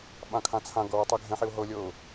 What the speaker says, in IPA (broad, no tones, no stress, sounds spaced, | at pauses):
ɓ ã kʰ ã t͡sʰ ã ɡ ɤ w ɤ tˤ e ɡʱ ɛ̃ ħ i ʊ̯ ɦ ɤ lʲ ɤ ʊ̯